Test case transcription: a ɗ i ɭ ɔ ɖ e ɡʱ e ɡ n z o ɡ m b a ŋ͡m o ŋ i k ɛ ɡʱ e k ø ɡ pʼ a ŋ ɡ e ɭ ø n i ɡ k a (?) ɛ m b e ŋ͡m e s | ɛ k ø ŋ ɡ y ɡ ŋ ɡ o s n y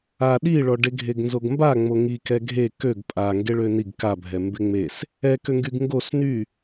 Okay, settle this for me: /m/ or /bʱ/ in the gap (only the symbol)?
bʱ